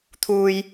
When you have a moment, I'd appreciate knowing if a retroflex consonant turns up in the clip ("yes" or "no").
no